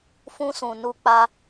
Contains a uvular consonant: no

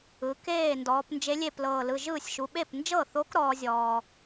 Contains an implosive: yes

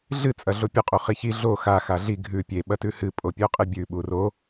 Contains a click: no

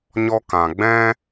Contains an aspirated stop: no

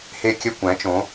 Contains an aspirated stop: no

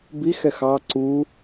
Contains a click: yes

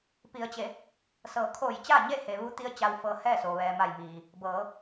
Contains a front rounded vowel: no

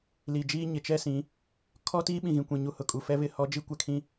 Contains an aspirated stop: yes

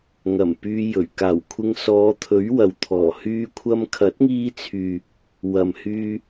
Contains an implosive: no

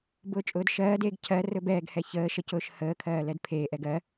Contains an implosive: no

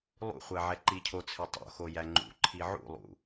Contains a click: yes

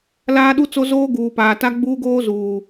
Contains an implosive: yes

